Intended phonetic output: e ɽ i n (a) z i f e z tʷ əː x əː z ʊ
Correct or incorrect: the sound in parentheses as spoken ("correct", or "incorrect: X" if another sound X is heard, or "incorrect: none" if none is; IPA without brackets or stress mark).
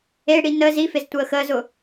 incorrect: ə